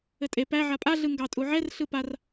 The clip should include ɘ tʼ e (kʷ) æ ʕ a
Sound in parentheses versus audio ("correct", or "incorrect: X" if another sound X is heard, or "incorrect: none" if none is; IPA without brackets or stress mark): incorrect: p